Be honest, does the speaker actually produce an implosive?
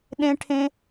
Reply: yes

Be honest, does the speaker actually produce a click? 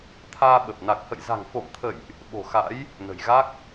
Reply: no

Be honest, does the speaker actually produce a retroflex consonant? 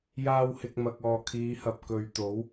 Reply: no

